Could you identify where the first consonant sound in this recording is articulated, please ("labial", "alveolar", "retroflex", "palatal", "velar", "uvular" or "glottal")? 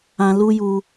alveolar